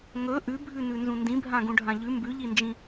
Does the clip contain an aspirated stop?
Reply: no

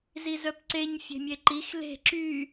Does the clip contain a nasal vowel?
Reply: no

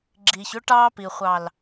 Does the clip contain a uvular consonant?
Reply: yes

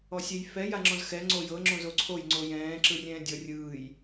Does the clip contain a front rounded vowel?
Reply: no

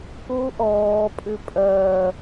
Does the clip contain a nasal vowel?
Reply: no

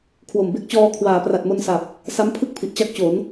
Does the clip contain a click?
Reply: no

